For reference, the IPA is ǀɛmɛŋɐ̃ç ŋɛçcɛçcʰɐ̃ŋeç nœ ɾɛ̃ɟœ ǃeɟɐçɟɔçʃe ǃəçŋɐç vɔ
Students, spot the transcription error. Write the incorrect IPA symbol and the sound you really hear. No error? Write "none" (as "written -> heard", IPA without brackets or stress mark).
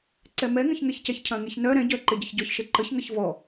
none